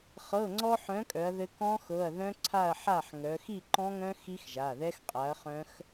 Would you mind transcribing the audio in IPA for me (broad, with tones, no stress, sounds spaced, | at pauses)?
χ ɤ˩˧˩ ŋ͡ǀ ɔ˧ ħ œ̃˨˥ kʼ œ˩˧ ɐ̯ ð ɘ˧ k ɔ̃˦˥ x ɤ˩˧˩ ɐ̯ ð œ̃˦˥ ǀʰ a˥˨ ɐ̯ ħ a˥˨ ħ ŋ œ˩˧ x i˥˨ ǃ ɔ̃˦˥ ŋ œ̃˦˥ x i˦˥ x ʒ a˩˧˩ ð ɛ˦˥ x qʼ a˨˥ ɐ̯ χ œ̃˦˥ x